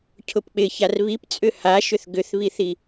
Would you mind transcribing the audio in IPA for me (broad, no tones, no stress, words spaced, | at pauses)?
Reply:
cʰʊpk͡pɪçar βipt͡sʼʏ haʃʏθ ɡʏθβiθi